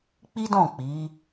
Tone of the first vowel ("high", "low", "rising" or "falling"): high